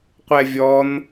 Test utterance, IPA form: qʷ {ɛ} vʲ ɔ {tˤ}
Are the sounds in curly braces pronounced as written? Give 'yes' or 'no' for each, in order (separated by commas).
yes, no